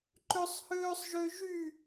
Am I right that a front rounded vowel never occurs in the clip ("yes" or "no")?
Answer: no